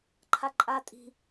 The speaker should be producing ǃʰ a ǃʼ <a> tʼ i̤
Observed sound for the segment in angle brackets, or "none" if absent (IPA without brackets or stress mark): a